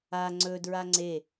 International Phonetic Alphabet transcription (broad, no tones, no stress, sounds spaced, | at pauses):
a ŋ͡ǀ ɵ d ɹ a ŋ͡ǀ e